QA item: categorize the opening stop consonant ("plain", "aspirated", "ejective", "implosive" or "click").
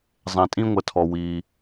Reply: ejective